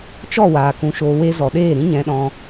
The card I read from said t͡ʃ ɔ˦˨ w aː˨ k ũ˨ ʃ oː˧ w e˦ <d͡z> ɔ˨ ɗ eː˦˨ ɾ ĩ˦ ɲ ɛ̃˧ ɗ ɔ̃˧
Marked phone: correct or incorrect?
incorrect